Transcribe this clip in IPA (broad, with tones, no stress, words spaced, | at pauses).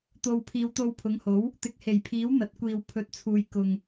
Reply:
t̪o˨w pʰiː˨˧wt̪o˧wpʰʊ˨˥ŋho˨˥w | t̪ɪ˨˥k̚he˨˩jpʰiː˨˥w n̪ɐ˨˥t̚kʷiː˧w pʰɵ˧t̚t͡sʰuː˧j kʊ˧ŋ